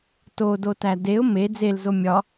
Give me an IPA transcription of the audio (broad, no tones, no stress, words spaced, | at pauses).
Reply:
todotæ deʊ̯ me d͡zelzo mʲɒ